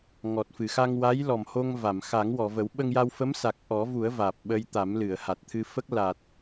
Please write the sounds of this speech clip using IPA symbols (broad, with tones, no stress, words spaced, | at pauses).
ŋɔ˨˩t̚fɨ˨˩˨xa˧ŋ wa˧˥j lɔ˨˩mho˧ŋ va˨˩˨m xa˨˩˦ŋwɔ˨˩˨və˨˩˦w ɓə˧ŋja˧wfə˧˥msa˨˩k̚ ʔɔ˨˩˦vu˨˩˦ə̯ vaː˨˩p̚ɓə˧jt̪a˨˩˦mlɨ˨˩˨ə̯ ha˨˩t̚t̪ʰɨ˧fə˦˥k̚ la˨˩t̚